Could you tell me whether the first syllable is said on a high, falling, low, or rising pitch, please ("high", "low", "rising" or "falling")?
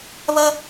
high